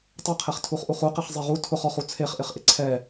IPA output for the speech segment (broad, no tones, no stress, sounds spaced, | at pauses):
tˤ ɛ qʰ e χ tʰ u χ ʔ u χ u q e χ zˤ e ʁ u tʰ ʊ χ ɔ χ u t͡sʰ e χ ʔ ɪ χ ʔ ɪ ǀʰ ɛ